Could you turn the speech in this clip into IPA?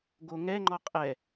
ɡoŋɛ ŋ͡ǃɔqʼɛ

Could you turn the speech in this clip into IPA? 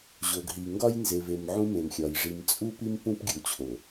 ʑo˨ɡɦi˨ŋɡɒ˦j nze˨ve˨m ʕũ˦mẽ˨mxʲɒ˨j ʐi˨mt͡sʼu˦pi˦m pũ˦pɡʲu˨ t͡ɕʰo˨

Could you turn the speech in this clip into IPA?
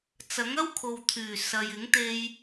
t͡sɐ˨˥ŋɐ˥wkʰo˨w t̪ʰyː˨˩ sɐ˨jɪ˨˥ŋt̪e˧j

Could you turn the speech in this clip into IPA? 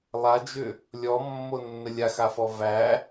lˠad͡ʒʏ | lʲɔmːonːə lʲaxafɔ væ

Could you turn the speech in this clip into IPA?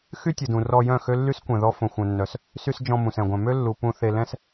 xy˦tʲə˨dũ˨ rɔ˧jœ̃˦˨ xø˦lːy˦skʷɛ̃˨ ðɔ˦ fõ˨xʷœ̃˨nːœ˨s | sy˧s d͡ʒɔ̃˧ mũ˨sɛ̃˨ɡʷœ̃˨ mø˦lːu˨ pũ˦˨ θe˧lɛ̃˦s

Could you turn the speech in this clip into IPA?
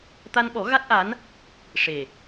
t̪a˧nɓɔ˨˩˦ ɣa˦˥t̚ʔa˧˥n | ʂe˨˩

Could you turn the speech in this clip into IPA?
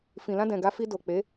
fĩ˨lã˧dɛ̃˨ ɡa˧fi˧ do˨k͡pe˨˦

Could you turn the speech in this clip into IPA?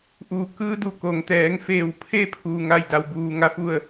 ʔuː˧˩ kɯː˧˥du˧˩ ko˩ŋt̪ɛː˩˧ŋfeː˧˩wpʰe˥˨ pʰuː˧ŋa˥˨jda˧wbuː˧ ŋa˥˨fu˥˨ə̯

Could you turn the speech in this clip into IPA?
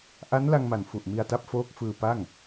ʔa˦˥nla˧ŋma˩˦n fu˨˩ʔmi˧a̯ta˦˥p̚foː˦˥k̚ fɯː˧pa˥˩ŋ

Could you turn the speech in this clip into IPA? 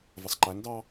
vəsˤǃændɑ

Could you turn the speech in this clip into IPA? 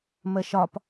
məʃɒp

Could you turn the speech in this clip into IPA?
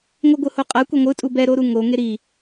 ŋʷɯɡʷɯhoqʼa kʷɯŋʷɯtʼu bɛɾoɾu ŋo ŋeɾi

